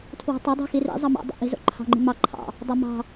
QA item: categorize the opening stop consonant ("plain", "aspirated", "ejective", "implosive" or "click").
aspirated